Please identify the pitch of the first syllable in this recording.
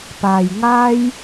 low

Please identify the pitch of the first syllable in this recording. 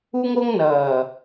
high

